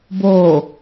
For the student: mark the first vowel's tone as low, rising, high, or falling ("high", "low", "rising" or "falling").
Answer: low